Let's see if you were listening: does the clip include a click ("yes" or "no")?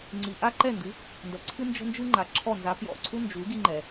yes